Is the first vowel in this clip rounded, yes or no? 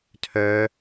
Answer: yes